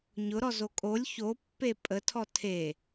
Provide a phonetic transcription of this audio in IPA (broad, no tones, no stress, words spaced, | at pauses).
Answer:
ɲʊɾɔzo kʼolʲ çopːe pʼətʰɔ tʰe